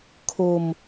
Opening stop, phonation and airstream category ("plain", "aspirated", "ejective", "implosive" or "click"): aspirated